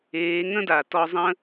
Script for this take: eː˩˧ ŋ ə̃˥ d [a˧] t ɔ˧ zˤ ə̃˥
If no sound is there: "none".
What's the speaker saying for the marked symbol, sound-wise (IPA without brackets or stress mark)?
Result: a˩